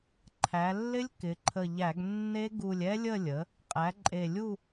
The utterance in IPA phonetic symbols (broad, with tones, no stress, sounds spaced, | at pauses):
ǃʰ æ˩˧ lː ɪ˦˥ lʲ k ɪ˩˧ ǃʰ ə˧˩ ʎ æ˧˩˧ ɡ nː e˦˥ ɡ u˧˩ lʲ ɛ˦˥ lʲ ə˥˨ lʲ ə˩˥ | qʼ æ˩˥ ǃʼ e˧˩ lʲ u˥˨